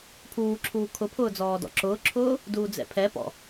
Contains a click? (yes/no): yes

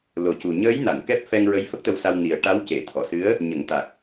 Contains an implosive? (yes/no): no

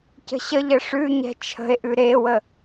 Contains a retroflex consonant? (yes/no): yes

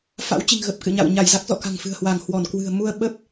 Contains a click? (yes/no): no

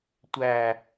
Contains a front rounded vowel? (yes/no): no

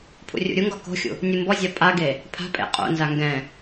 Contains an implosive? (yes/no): no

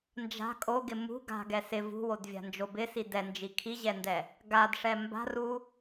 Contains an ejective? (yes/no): yes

